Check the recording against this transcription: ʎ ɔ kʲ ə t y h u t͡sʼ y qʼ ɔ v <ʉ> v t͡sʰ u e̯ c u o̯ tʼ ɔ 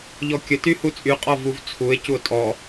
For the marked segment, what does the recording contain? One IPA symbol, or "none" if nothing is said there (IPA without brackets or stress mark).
u